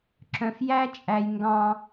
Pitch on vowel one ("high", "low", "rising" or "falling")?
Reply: low